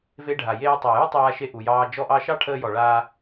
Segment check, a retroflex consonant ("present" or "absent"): present